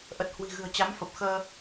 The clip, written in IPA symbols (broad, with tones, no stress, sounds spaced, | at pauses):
ʔ ə˨˩ t̚ h w i̤˨˩ ɣ ɨ̤˨˩ ə̯ t͡ɕ a˨˦ m f ə˨˩ p̚ x əː˧